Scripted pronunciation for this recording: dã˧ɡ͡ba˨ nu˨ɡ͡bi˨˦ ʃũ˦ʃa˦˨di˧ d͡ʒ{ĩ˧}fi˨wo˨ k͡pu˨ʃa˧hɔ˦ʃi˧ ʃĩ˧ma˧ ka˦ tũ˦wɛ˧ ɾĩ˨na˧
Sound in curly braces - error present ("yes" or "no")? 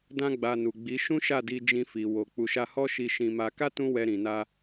no